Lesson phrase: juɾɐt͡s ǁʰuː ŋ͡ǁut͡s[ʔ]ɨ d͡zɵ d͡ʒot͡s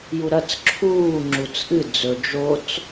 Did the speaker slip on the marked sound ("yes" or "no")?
no